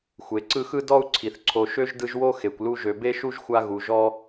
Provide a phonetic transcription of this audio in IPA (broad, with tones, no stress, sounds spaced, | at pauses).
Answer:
xʷ e˩ ǀ ɯ˦ x ɯ˥ d ɔ˥ u̯ ǀʰ i˩ θ ǀʰ o˨ ʃ ø˥ ʒ d ɯ˦ ʒ w o˥ x e˩ kʷ l u˦ ʒ ø˨ b e˥ ʃ u˥ ʒ xʷ a˦ ɣ u˨ ʒ ɔ˥